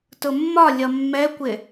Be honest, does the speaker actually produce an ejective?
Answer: no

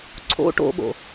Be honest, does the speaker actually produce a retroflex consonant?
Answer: yes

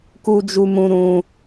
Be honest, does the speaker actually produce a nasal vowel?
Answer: yes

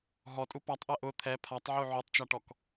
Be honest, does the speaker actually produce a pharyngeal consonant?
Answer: yes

